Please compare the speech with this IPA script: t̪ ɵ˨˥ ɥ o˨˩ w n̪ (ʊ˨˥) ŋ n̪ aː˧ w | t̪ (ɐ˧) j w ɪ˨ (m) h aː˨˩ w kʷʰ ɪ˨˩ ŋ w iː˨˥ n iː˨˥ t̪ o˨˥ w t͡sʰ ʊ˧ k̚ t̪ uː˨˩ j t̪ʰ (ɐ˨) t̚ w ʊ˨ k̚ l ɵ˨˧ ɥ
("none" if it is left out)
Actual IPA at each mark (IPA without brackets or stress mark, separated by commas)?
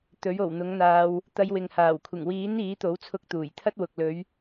ʊ˨˥, ɐ˧, ŋ, ɐ˥